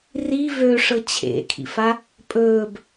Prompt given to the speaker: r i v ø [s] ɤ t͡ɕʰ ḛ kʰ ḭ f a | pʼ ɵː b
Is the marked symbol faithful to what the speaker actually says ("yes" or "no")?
no